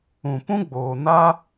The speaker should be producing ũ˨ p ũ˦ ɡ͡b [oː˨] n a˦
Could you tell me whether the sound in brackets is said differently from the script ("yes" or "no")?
no